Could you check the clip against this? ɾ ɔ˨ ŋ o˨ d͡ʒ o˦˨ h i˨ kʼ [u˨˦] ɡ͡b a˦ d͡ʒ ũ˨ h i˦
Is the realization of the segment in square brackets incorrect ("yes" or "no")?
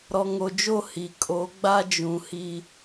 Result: yes